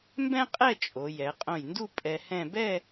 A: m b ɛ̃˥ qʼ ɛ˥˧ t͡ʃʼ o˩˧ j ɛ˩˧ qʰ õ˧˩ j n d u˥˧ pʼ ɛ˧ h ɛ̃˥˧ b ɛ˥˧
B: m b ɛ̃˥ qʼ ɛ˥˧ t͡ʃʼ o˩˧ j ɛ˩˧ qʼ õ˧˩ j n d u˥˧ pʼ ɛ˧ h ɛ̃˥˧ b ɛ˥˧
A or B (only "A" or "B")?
B